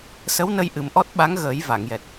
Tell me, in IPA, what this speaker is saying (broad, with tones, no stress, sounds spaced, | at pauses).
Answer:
s ə˧˥ w n ə˧ j ʔ ɨ˨˩ m ʔ ɔ˦˥ t̚ ɓ a˧˥ ŋ ɣ əː˨˩˦ j v a˨˩˨ ŋ j ɛ˨˩ t̚